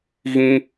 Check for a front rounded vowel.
absent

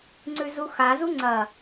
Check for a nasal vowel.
absent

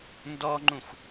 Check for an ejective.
absent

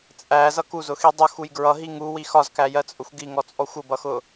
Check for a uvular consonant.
absent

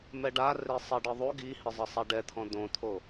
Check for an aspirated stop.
present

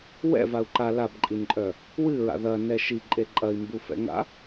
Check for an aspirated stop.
absent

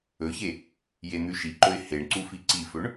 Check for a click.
present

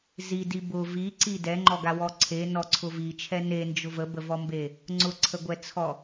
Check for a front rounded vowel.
absent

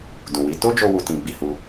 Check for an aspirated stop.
absent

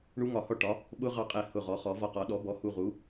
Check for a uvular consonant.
present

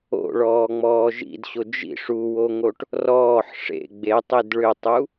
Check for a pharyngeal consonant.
present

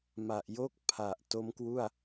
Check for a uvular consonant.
absent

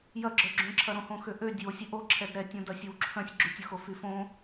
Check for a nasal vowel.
present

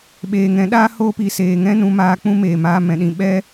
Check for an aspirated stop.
absent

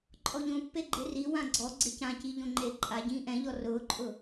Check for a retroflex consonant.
absent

